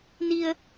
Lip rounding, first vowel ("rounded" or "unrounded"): unrounded